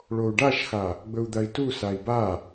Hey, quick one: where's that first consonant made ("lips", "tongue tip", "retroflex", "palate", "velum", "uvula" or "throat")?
retroflex